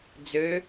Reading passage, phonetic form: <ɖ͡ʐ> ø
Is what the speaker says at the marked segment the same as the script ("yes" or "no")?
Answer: no